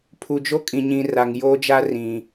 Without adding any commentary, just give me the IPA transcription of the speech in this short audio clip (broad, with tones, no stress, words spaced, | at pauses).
pʰu˨d͡ʒo˦kʼĩ˨ɲĩ˨ ra˨ŋjoː˦d͡ʒa˦ rĩ˨